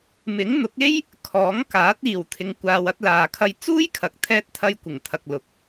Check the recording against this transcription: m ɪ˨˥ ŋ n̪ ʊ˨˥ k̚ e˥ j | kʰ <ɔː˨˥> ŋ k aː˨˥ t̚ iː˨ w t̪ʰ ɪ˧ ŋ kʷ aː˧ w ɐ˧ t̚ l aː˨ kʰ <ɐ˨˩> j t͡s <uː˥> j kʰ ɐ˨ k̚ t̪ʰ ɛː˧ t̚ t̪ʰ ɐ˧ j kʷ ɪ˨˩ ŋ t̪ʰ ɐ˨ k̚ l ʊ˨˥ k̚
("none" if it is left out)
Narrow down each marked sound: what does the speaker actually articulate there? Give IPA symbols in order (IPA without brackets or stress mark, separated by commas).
ɔː˨˥, ɐ˧, uː˥